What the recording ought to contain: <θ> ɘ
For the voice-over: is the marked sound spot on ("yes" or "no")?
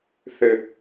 yes